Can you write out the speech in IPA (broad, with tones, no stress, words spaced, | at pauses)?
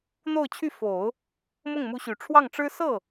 n̪o˥˧ʊ̯t͡ɕʰy˥˩fo˨˩˦ʊ̯ | mʊ˥˩ŋmu˧˥ɕy˨˩ ʈ͡ʂʰwɑ˥˩ŋʈ͡ʂɻ̩˥ sɤ˥˩